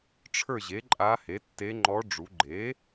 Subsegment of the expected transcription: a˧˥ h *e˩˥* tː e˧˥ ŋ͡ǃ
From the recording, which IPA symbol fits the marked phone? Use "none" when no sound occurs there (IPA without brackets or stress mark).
e˩˥